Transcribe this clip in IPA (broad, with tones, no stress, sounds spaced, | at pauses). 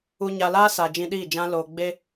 u˧ ɲ a˧ l aː˦ s a˨ d͡ʒ ĩ˧ ɗ iː˦˨ d͡ʒ ã˦ l oː˧ ɡ͡b e˧